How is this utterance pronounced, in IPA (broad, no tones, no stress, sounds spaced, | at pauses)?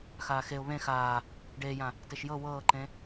x aː x e ʊ̯ β ẽ x aː | ɖ eː j ã | t e ʃ j ɤ w ɤː ǃ ẽ